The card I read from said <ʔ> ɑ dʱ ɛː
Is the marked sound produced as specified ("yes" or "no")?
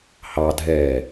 no